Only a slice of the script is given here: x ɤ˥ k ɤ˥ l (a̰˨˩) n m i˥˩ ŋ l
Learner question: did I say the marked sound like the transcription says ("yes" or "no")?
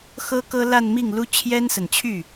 no